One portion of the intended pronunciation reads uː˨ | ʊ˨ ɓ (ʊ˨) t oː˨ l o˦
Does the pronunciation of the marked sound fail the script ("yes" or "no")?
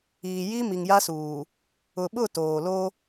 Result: yes